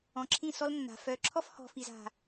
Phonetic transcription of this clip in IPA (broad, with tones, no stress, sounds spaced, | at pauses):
ɔ̃˨ ǁʰ ĩ˦˨ s ɔ˦ l nː a̤˨ f œ˨ ǁʰ ɔ˦ f h ɔ̤˨ f i˨ z a̤˨